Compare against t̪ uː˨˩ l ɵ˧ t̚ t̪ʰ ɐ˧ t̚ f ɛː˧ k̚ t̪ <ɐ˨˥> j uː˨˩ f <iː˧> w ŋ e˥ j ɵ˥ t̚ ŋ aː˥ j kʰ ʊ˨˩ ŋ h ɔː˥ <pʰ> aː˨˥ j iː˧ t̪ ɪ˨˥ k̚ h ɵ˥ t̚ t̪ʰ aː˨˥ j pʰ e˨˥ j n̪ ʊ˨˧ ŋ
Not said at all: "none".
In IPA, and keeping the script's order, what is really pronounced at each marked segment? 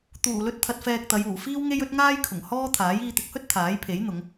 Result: ɐ˨˧, iː˥, t̪ʰ

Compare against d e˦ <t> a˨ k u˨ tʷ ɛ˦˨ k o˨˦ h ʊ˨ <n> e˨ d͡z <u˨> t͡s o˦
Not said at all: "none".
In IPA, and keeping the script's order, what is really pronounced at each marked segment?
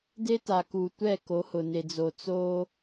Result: t, n, o˨

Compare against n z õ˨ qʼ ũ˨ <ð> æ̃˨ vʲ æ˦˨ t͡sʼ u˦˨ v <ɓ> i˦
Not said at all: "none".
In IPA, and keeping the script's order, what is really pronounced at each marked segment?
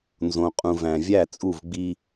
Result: v, ɡ͡b

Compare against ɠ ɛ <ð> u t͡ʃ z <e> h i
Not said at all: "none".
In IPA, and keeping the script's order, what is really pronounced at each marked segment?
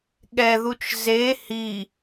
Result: ð, e

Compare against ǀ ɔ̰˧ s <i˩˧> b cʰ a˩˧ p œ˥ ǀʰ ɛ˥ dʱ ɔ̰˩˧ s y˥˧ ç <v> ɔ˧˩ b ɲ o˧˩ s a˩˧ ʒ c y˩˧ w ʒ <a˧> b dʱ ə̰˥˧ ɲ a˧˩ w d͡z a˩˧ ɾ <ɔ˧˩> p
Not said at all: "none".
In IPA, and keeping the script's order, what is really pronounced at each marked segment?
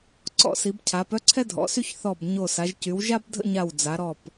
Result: i˩˧, θ, a˥, ɔ˧˩

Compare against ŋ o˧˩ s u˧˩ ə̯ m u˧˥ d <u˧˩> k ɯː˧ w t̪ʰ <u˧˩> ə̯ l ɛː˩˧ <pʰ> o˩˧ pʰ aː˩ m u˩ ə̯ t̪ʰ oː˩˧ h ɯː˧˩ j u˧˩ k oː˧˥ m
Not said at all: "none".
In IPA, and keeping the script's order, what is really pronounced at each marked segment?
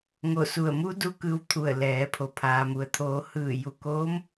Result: u˧, u˧˩, pʰ

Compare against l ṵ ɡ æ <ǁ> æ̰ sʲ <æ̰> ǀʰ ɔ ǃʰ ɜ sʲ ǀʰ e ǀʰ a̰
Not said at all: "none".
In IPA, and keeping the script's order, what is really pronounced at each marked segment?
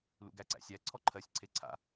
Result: ǀ, æ

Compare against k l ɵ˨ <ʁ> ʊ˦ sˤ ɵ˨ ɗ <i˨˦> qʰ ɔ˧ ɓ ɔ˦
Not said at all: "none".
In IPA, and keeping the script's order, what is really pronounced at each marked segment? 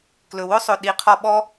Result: w, i˨˦

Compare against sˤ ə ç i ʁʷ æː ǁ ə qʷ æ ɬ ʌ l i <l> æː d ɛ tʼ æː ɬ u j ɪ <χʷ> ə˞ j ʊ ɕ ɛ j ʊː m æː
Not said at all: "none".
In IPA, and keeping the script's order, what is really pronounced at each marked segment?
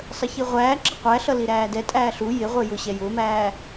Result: ɾ, ʁʷ

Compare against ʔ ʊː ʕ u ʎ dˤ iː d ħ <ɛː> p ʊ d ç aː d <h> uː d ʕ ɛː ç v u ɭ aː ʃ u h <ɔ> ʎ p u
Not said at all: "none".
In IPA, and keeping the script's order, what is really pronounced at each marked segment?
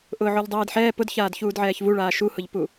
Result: ɛː, ç, ʊ

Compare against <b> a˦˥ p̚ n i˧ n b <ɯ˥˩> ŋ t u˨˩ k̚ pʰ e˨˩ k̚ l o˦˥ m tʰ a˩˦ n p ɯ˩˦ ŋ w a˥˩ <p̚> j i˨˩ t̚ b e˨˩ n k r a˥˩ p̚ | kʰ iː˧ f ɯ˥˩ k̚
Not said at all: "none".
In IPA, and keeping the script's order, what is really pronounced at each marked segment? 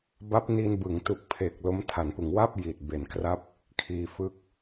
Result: b, ɯ˩˦, p̚

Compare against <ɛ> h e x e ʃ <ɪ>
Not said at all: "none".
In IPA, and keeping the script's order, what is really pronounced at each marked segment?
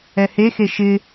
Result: ɛ, ɪ

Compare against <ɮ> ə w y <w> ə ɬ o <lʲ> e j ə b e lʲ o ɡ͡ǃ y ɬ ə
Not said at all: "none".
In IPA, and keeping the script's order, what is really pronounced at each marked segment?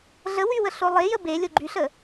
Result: ɮ, w, lˠ

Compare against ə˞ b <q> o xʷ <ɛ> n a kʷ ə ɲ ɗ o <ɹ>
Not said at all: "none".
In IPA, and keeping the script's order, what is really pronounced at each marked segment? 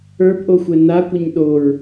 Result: ʔ, ɛ, ɹ

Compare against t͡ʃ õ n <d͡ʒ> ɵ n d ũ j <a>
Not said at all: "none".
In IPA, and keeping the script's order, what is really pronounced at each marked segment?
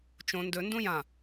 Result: d, ã

